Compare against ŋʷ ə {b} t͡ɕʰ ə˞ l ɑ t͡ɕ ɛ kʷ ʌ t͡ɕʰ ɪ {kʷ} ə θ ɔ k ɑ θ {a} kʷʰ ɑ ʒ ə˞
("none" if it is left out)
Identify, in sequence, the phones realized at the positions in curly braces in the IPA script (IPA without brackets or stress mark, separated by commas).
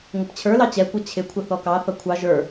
p, kʷʰ, ʌ